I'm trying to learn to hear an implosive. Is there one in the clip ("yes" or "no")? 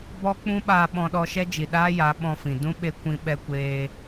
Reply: yes